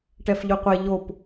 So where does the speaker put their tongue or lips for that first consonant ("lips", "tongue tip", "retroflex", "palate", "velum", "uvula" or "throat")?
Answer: retroflex